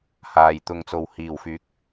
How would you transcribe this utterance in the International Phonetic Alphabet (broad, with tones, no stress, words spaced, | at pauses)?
haː˨j t̪ʊ˨ŋt͡so˨w hiː˨˩wfyː˨˥k̚